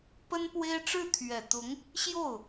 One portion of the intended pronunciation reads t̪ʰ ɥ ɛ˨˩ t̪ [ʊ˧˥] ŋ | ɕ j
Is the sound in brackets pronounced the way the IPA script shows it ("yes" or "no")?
yes